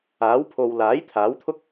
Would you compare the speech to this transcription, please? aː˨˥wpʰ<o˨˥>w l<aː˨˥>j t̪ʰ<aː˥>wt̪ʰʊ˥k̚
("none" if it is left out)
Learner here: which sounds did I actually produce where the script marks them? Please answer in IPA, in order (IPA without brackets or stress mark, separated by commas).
o˨, aː˨˥, aː˨˥